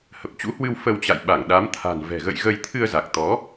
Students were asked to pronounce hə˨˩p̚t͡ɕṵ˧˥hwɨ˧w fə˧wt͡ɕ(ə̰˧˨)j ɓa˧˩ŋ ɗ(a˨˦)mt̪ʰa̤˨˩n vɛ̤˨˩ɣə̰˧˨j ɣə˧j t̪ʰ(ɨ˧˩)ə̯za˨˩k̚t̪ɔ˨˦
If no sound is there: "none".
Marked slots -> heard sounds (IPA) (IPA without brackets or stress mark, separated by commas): a̰˧˨, a˨˦, ɨ˧